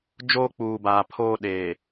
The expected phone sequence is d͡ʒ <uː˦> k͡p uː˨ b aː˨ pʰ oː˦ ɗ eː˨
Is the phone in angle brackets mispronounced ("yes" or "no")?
yes